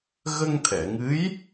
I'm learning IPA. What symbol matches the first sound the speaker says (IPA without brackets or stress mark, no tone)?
ɣ